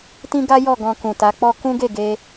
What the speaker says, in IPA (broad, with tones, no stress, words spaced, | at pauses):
tĩ˦ ɡa˦ jɔ˦˨ ɡɔ̃˧kũ˨ta˨˦k͡pɔ˦ kũ˦ɡe˦˨ɡe˧